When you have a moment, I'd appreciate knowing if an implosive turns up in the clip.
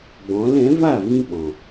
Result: yes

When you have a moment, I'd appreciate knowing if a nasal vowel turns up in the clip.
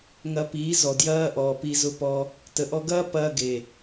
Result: no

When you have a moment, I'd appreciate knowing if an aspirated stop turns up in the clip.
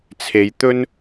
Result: yes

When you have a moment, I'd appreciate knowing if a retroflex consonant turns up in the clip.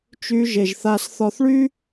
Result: yes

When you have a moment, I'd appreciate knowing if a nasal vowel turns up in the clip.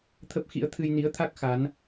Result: no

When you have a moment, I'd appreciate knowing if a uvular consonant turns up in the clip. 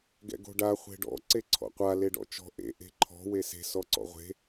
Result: yes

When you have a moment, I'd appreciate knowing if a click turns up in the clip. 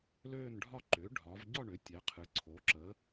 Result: yes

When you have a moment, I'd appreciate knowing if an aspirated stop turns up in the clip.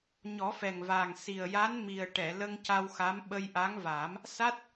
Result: no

